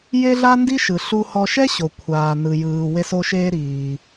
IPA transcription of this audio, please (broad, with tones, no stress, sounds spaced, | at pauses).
j e˥ ɮ a˥ n d i˥ ʃ ɯ˩ ɬ u˧ h ɔ˧ ʃ ɛ˥ ɕ o˩ kʷʰ aː˩ n ɯ˩ j ɯː˩ w e˧ s o˧ ʃ eː˧ ɾ iː˩